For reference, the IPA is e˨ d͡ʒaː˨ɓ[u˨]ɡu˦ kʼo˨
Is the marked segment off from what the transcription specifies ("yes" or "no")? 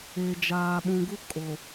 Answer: yes